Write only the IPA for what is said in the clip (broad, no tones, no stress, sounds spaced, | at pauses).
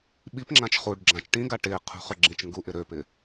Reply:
ɓ i p ŋ͡ǁ ã t͡ʃ χ u ɖ ɡ͡ǁ ã t͡ʃ ʈ ĩ ɡ a ʈ ɪː qʰ ṳ χ ø ɡ͡ǁ ĩ t͡ʃ ŋ ɡ u ʔ ɪ ɾ ø p ɪː